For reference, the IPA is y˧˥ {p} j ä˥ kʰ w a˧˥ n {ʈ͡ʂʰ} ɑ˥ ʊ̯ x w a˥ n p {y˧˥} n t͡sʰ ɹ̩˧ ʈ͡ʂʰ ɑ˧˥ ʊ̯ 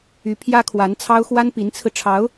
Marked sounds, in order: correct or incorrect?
incorrect: pʰ, incorrect: t͡sʰ, incorrect: i˧˥

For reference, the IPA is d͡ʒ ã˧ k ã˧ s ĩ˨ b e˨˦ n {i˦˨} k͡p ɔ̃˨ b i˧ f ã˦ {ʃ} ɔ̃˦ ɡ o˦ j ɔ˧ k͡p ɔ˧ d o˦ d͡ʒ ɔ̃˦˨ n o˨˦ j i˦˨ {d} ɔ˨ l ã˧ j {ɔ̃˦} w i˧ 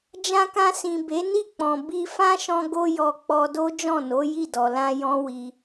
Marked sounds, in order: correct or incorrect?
correct, correct, correct, correct

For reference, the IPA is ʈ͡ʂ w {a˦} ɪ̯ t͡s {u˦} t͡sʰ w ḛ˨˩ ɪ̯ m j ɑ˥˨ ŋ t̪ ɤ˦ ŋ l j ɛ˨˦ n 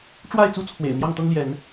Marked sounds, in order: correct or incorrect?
incorrect: a˥˨, correct

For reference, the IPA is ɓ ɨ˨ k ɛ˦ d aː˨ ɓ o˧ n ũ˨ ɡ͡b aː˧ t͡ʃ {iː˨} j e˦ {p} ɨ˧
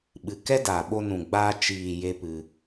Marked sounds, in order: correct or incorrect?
correct, correct

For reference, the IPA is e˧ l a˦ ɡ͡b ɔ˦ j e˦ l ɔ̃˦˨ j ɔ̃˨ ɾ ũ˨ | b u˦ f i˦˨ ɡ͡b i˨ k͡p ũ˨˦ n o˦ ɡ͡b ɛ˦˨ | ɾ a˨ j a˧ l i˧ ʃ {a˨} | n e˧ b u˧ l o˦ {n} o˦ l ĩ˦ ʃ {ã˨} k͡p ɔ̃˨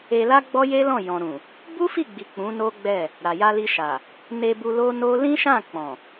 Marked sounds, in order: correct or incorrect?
correct, correct, incorrect: ã˦˨

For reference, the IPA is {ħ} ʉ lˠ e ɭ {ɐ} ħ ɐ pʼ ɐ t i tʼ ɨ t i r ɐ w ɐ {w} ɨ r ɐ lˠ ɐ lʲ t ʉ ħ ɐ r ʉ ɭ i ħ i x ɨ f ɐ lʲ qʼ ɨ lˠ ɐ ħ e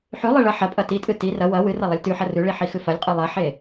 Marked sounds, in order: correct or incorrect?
correct, correct, correct

